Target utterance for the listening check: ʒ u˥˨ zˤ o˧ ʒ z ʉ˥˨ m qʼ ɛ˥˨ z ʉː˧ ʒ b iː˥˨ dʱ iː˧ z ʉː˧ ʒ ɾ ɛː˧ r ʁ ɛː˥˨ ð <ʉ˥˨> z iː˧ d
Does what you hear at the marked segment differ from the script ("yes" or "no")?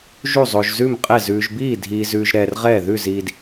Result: no